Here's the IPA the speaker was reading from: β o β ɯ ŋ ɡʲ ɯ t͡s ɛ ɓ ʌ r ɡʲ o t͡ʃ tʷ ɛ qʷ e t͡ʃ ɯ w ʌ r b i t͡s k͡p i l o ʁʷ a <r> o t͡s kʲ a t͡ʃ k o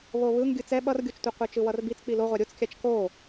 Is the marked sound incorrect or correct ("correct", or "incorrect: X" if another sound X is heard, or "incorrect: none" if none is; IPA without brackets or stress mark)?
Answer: incorrect: ɾʲ